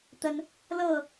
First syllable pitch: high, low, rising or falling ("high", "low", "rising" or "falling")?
high